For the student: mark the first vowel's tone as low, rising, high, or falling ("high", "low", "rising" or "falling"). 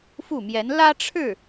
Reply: falling